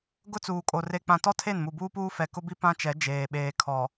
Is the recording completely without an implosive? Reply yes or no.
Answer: no